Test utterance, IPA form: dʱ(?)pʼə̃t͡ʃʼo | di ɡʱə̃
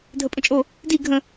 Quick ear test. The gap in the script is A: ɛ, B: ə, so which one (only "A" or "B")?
B